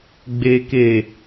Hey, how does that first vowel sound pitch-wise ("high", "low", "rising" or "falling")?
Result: low